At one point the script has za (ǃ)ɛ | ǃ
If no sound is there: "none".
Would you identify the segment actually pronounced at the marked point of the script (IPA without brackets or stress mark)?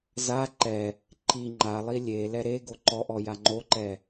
ǃ